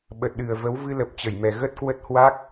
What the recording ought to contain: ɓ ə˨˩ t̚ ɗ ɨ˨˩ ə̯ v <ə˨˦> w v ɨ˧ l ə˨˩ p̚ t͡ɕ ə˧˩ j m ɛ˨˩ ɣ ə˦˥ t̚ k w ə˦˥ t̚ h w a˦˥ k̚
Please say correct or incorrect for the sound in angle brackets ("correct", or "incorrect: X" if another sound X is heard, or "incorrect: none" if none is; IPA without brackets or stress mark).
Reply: correct